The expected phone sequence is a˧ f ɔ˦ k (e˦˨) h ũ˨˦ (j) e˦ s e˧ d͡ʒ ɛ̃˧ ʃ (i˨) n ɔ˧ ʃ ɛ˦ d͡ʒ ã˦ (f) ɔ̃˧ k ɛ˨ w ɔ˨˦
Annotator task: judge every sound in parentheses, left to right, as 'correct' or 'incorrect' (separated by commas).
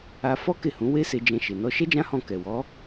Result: correct, incorrect, incorrect, incorrect